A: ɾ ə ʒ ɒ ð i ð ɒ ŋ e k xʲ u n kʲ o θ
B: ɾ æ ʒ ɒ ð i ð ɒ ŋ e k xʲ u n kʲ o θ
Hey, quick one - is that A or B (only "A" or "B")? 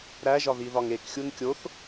B